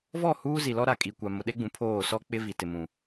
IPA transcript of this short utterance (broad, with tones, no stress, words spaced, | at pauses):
vɔ˦˨huː˦zi˨lɔ˦ ɾa˨kʼi˨kʷa˨ mʊ˨ɗe˦ɡ͡bũ˨ pʰoː˦˨sɔ˦ k͡pɪ˦vi˨ tɪ˨mũ˨